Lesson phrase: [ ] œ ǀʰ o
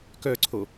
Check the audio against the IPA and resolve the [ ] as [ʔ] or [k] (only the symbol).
k